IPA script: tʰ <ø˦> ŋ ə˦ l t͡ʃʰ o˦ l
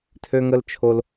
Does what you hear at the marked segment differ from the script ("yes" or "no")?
no